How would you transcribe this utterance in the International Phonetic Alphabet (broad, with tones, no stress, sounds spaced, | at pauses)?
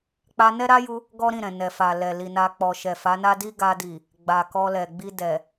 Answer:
k͡p a˧ n ɛ˦ ɾ a˦ j u˧ | ɡ ɔ˦ ɾ ĩ˦˨ ɾ ɛ̃˨ n ɛ˨ f a˨ l ɛ˨ l i˨ n a˧ k͡p ɔ˨ ʃ ɛ˨ f a˨˦ n a˦ d i˦ ɡ a˧ d i˨ | ɡ͡b a˨ k ɔ˧ l ɛ˨ ɡ͡b i˧ d ɛ˨